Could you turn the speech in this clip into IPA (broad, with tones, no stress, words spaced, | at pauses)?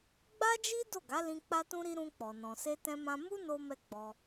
ɡ͡ba˦d͡ʒi˦ do˦˨ɡa˨˦lĩ˧ k͡pa˧tũ˧ɾi˧ ɾũ˧k͡pɔ˨ nɔ̃˨se˧tɛ̃˧mã˧ mu˦no˧mɛ˧ ɡ͡bɔ˧